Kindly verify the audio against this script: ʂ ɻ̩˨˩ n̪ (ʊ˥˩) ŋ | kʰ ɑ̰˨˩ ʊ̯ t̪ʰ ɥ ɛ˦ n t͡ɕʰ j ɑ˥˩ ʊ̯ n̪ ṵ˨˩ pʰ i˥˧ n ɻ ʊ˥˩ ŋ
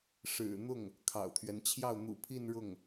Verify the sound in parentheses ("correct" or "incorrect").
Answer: correct